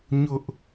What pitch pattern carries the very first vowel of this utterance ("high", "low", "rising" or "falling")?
high